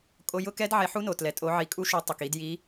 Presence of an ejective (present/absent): present